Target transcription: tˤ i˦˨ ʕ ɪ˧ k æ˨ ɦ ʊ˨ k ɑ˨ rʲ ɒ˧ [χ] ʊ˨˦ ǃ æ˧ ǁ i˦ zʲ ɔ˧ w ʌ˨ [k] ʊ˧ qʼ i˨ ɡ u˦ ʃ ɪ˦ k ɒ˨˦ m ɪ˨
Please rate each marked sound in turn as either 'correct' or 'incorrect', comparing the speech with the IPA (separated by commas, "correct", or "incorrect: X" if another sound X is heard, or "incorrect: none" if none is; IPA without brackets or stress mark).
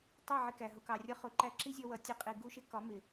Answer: correct, incorrect: tʲ